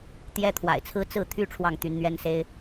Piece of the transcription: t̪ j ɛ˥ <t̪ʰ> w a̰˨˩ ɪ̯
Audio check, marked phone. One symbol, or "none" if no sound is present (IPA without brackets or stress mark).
t̪ʰ